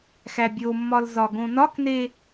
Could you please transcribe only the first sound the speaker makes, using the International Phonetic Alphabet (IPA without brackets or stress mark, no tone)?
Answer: x